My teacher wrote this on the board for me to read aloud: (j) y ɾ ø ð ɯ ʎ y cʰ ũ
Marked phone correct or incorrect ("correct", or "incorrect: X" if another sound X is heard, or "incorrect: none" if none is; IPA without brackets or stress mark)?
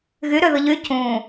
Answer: incorrect: ɣ